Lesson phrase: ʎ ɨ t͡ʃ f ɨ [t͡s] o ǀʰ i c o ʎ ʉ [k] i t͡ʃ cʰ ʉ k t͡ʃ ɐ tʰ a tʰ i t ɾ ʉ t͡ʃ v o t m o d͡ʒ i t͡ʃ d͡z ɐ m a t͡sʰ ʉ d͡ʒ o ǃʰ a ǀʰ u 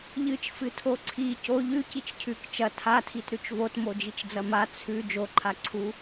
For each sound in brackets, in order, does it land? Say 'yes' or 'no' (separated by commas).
no, no